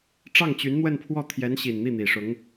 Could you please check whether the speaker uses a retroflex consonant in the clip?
yes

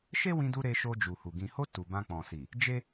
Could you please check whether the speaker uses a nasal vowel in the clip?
yes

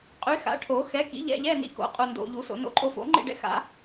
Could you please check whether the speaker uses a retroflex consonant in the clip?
yes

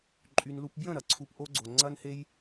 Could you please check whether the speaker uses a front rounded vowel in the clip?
yes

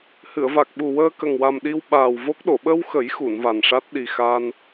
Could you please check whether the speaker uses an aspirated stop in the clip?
no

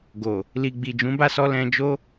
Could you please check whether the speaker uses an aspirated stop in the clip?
no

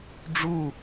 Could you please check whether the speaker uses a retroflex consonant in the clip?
yes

